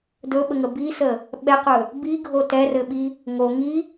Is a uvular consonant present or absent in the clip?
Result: present